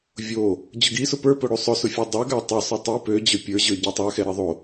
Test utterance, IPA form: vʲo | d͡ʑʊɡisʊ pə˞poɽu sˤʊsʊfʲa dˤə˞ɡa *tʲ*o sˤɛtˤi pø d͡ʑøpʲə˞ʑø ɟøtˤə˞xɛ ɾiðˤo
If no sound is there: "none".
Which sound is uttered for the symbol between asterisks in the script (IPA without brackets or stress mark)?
tˤ